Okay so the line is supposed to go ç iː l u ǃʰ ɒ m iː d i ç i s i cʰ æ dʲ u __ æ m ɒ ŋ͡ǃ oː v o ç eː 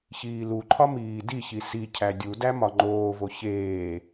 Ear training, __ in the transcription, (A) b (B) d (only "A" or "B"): B